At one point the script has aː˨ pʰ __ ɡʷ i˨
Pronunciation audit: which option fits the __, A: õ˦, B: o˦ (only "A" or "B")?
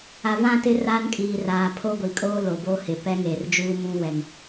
B